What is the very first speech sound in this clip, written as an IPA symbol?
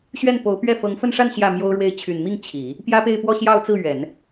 ɕ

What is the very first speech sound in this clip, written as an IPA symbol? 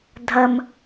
dʱ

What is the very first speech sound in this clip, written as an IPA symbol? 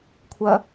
kʷʰ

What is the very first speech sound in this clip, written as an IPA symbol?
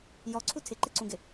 j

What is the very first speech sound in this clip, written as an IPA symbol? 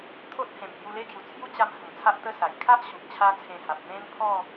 t̪ʰ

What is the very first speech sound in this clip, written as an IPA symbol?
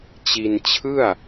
t͡ɕ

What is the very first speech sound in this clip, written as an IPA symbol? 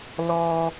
l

